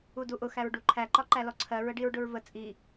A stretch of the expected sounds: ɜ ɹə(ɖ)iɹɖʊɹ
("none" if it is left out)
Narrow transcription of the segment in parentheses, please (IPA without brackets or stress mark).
ɖ